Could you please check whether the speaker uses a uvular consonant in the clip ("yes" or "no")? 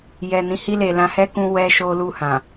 no